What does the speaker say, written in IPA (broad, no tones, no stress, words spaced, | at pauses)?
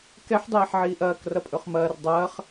kɛħdˤɛːħʕiːʔ ɐːkrɐpʼɵχ mɐːr dˤɐːχ